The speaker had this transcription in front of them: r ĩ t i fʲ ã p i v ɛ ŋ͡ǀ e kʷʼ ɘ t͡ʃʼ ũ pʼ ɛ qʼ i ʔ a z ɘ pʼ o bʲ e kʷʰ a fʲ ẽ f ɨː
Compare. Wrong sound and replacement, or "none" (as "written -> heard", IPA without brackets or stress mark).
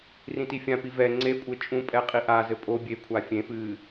none